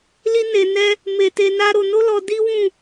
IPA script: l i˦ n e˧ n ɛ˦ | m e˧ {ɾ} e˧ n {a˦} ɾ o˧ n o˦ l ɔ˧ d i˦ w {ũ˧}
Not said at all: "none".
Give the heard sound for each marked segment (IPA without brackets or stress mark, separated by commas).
t, a˦, ũ˦˨